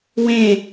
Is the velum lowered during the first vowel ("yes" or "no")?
yes